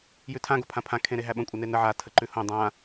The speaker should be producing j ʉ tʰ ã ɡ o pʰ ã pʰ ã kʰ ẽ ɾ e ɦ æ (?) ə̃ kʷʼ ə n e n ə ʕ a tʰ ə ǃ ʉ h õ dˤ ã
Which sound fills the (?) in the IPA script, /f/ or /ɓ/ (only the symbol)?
ɓ